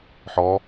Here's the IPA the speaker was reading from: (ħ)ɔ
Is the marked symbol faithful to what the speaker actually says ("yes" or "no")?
yes